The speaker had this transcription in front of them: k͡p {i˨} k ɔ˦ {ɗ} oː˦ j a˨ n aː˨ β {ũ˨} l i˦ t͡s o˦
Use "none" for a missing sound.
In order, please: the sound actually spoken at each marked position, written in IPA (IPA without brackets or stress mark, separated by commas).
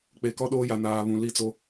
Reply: e˨, ɗ, ũ˨